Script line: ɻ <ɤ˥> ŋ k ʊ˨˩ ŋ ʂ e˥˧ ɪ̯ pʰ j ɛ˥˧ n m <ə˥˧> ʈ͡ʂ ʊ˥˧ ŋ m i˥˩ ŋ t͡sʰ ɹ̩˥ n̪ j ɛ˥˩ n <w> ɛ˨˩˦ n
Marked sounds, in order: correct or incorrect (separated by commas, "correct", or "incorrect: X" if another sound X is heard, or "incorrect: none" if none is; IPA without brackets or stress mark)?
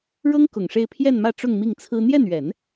correct, incorrect: ä˥˧, incorrect: ɥ